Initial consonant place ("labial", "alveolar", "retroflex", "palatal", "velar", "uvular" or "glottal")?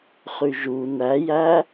uvular